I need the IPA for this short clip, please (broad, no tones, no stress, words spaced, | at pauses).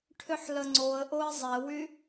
ʈʰʏħləŋ͡ǀoə̯ʔoɪ̯ zˤɛwy